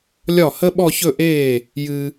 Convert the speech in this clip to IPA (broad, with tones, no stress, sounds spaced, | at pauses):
lʲ ɒ˥˩ h ə˥ ɓ ɔ˥˧ ç ɵ˥˧ ʔ eː˥˩ | j ɨ˨